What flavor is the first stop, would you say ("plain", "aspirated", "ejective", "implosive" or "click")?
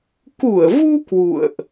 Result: plain